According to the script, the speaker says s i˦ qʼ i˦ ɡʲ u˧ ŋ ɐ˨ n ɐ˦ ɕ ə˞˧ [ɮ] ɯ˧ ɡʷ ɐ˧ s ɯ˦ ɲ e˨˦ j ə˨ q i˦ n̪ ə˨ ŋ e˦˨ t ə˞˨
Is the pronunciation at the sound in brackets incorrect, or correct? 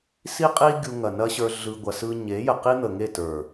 correct